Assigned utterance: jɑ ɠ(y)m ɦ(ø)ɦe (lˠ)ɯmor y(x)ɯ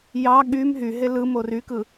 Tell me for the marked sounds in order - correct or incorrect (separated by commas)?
correct, incorrect, incorrect, incorrect